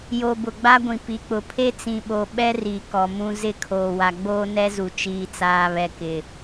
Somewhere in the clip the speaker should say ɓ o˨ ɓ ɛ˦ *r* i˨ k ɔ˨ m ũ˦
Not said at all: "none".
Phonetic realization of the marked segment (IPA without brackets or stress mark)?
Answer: r